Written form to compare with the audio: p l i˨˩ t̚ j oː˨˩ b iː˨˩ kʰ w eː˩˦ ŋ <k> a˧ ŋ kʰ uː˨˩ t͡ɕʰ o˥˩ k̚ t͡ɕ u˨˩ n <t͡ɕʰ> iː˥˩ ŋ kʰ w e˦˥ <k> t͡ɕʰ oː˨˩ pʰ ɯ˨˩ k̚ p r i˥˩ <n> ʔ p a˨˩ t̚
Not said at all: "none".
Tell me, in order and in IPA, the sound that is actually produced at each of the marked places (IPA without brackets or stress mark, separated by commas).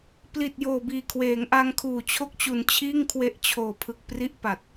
ʔ, t͡ɕʰ, ʔ, none